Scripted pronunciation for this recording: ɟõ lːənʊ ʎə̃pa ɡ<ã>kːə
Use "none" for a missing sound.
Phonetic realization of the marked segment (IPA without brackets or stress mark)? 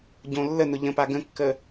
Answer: ə̃